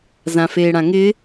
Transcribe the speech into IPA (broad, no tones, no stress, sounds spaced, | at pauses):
z ã f eː ɽ ã ŋ ɪ